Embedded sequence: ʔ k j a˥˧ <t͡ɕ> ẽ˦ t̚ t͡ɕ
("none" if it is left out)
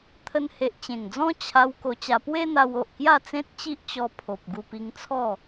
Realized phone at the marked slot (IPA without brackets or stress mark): t͡s